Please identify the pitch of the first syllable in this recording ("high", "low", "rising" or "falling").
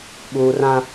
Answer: low